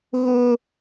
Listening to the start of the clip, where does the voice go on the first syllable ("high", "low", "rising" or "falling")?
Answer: high